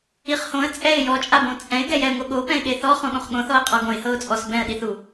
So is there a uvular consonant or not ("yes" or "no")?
yes